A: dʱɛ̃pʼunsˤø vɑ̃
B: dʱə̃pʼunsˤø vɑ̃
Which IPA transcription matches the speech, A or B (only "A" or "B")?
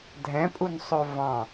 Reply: A